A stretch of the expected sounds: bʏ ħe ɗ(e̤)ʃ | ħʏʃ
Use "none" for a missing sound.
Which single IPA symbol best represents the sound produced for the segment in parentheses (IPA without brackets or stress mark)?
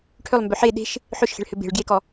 e̤